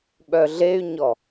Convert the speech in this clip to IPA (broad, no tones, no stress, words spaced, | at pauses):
ɓœɮey̯ɲɔ